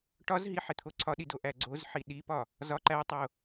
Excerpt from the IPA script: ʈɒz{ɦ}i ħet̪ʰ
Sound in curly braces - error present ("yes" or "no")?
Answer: no